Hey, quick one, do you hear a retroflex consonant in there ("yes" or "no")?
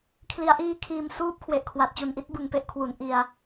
no